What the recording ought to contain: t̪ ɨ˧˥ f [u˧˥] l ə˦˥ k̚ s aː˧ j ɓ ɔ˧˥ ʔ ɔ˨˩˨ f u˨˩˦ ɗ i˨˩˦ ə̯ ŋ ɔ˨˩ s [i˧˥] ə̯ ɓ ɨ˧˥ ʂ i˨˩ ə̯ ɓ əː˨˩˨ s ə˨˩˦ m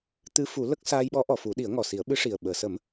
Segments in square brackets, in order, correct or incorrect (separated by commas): incorrect, incorrect